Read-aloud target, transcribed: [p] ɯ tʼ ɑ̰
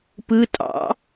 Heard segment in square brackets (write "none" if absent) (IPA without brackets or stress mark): p